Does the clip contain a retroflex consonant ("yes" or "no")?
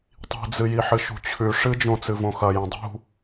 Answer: yes